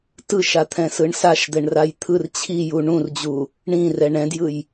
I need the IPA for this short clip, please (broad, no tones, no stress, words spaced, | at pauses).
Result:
tɯʃat̪ʰɛ̃sɯɳ saʃd̪ɛɳraj t̪ʰɯr t͡ɕʰiju ɳũrd͡ʑu | ɳĩrɛ ɳɛ̃djɯj